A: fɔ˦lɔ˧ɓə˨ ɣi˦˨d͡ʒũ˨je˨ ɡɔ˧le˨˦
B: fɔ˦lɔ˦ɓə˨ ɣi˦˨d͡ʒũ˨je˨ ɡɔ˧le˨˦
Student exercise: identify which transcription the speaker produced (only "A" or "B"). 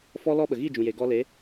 B